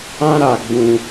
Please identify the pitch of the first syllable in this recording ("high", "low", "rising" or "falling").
high